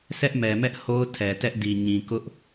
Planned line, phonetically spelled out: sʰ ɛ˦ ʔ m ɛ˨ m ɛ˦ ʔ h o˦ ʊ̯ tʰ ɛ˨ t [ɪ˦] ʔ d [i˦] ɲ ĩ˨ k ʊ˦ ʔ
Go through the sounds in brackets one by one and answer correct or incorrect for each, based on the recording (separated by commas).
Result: incorrect, incorrect